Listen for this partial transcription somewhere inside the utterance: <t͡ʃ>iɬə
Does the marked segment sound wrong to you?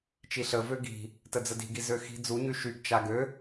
no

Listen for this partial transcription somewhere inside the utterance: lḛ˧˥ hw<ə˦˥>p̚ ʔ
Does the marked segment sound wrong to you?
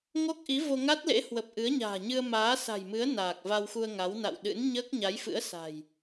yes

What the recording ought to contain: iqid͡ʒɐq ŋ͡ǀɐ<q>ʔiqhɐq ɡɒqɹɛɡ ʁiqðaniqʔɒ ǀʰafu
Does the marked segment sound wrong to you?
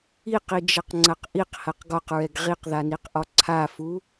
no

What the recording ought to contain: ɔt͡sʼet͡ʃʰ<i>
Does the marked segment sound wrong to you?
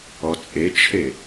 yes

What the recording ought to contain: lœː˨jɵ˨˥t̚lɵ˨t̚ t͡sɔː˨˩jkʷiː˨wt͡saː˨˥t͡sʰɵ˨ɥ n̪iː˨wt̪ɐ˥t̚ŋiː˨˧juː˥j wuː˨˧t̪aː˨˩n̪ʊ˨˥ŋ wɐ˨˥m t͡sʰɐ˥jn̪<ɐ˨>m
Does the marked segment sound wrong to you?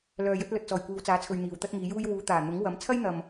no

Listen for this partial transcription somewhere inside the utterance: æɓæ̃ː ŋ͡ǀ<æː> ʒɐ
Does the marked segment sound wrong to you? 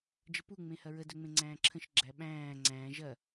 yes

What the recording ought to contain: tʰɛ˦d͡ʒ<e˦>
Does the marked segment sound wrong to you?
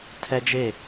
yes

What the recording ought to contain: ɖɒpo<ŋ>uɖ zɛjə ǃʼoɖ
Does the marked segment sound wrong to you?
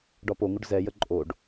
no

